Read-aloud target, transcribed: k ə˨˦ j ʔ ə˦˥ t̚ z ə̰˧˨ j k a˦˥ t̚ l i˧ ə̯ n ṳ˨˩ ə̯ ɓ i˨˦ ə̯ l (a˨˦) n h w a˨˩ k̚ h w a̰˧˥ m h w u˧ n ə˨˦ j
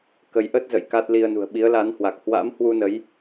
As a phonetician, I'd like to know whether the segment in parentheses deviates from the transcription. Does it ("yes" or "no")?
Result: no